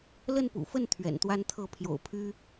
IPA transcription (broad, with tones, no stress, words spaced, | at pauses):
lə˥˨npṵ˨˩fə˥˨n t̪ʰɥɛ̰˨˩nt̪wa˦nt̪ʰɤ˥˨ pʰjo̰˨˩ʊ̯pʰy˦